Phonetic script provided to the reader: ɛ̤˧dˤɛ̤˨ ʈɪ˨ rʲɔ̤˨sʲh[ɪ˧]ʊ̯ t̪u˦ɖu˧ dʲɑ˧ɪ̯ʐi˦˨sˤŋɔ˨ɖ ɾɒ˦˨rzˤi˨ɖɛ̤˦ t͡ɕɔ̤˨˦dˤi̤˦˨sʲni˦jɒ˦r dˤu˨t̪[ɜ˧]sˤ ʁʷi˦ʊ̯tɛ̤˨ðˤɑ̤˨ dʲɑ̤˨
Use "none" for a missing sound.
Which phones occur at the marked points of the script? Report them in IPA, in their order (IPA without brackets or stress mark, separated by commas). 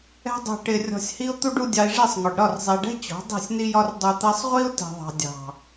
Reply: i˧, ɜ˧